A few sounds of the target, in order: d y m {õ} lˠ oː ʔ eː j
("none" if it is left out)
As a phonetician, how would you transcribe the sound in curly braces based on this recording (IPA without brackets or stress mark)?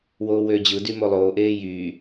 o